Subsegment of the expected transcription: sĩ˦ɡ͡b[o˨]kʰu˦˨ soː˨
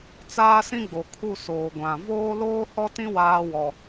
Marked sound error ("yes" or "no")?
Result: no